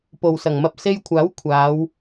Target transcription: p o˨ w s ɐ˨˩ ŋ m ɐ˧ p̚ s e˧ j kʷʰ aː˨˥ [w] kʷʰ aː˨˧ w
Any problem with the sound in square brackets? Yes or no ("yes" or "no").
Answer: no